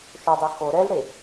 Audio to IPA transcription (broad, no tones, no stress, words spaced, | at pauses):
ʃodˤe xo ɾɛlɽe